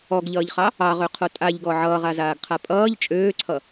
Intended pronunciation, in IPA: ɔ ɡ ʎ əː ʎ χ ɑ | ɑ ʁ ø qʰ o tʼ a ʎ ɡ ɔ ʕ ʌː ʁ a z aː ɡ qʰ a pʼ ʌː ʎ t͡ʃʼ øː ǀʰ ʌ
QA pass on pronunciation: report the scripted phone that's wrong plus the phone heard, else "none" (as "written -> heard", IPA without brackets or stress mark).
əː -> ʌː